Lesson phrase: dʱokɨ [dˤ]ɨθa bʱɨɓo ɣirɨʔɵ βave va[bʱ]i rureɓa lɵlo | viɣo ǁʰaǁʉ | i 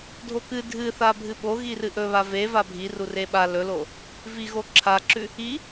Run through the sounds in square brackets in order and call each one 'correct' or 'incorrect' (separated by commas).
incorrect, correct